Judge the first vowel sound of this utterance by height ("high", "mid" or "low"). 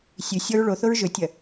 high